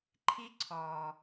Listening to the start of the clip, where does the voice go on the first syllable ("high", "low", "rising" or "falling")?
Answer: high